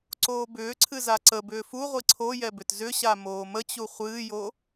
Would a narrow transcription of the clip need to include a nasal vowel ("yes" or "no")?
no